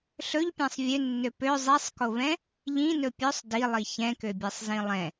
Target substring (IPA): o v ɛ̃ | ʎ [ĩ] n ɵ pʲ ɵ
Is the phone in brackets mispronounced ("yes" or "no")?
no